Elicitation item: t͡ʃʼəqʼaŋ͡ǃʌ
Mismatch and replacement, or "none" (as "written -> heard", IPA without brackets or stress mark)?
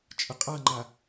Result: ʌ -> a